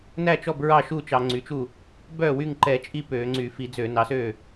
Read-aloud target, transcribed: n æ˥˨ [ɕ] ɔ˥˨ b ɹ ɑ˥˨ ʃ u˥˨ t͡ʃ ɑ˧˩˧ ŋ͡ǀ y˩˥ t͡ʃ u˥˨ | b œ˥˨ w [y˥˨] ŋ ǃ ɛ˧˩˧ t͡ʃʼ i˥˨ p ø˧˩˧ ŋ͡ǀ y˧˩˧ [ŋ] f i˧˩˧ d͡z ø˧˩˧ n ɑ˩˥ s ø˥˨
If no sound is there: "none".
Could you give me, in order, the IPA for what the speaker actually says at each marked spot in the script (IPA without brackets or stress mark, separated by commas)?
t͡ʃ, y˥˨, none